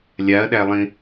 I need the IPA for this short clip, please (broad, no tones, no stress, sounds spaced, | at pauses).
lʲ a ɐ̯ ɗ æ lˠ ĩ